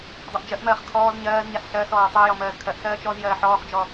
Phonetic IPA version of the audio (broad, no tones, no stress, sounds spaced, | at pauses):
dˤ a ʔ d͡ʒ ɜ ʔ m ɜː χ kʰ ɔː z ɲ ɜː z ɲ a s ɬ ɜ s ɔː tˤ ɜ j ɔ m ɜː z kʰ ɜ ʔ s ɜː t͡ʃ ɔ z j ɜː ħ ɔː χ d͡ʒ ɔ